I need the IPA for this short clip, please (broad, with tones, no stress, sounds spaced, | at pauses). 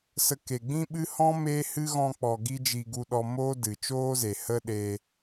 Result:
s ə˧ k e˨ ɡ͡b ĩ˦ ɓ ɨ˦ h ɔ̃˦ m e˦ h ɨ˦ ɣ ɔ̃˧ k͡p ɔ˨ ɡ i˧ d͡ʒ i˧ ɡ u˧ ɗ ɔ˧ m oː˦ d ɨ˨ t͡ʃ oː˦ z e˨ h ə˦ ɗ e˧